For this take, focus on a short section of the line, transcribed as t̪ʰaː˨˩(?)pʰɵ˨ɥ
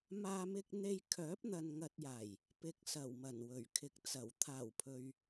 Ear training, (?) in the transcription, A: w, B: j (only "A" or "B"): A